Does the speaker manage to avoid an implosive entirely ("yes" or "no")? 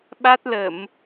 no